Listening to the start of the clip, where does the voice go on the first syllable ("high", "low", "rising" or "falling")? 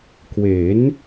rising